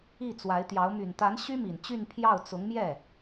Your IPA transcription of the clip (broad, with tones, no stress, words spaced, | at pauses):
i˥˩t͡swa˧˥ɪ̯t̪jɑ˧˥ʊ̯ my˨˩nt̪a˧˥n ɕy˥mi˨˩nt͡ɕy˥˧npʰjɑ˥˩ʊ̯ t͡sʊ˧˥ŋmjɛ˥˩